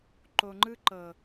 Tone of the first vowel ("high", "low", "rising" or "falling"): low